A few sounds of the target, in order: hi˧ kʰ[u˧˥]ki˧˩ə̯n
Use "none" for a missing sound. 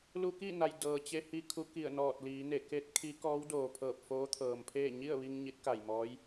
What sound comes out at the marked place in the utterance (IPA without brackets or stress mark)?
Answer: u˧˥